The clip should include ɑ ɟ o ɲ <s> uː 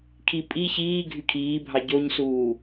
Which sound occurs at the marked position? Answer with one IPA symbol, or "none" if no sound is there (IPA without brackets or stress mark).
s